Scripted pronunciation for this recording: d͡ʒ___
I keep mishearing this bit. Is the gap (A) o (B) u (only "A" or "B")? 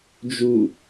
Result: B